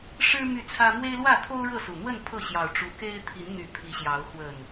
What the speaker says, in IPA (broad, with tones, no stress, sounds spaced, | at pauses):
ʂ ɻ̩˦ m y˥˨ t͡sʰ ä˦ m w e˦ ɪ̯ l w ä˥˨ t̪ʰ o˦ ʊ̯ ɻ ɤ˥˨ s u˨˩ n̪ w ə˥˨ n pʰ ɤ˥˨ ɕ j ɑ˨˩ ʊ̯ ʈ͡ʂ u˨˦ k e˦ ɪ̯ t̪ʰ i˨˦ n n̪ y˨˩ pʰ i˨˦ ɕ j ɑ˨˦ ʊ̯ x w ə˨˩ n